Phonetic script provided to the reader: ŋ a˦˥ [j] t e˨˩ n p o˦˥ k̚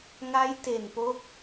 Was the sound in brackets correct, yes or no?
yes